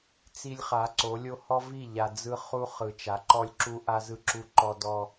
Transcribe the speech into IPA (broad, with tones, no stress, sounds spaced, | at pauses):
t͡s i˦ lʲ χ a˨˦ ǀ o˨˦ lʲ o˦ h ɔ˦ v i˦˨ ʎ a˨ d͡z ɯ˦ χ u˦ χ ɯ˨ t͡ʃ a˨˦ ǃ ɔ˦ lʲ ǁ u˦ ʔ a˦ z ɯ˦ ǁ u˦ ǃ ɔ˦ d ɔ˦